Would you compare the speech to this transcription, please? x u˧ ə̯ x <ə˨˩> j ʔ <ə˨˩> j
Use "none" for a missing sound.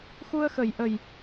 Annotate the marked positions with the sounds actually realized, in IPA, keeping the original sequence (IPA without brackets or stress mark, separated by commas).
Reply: ə˨˩, ə˨˩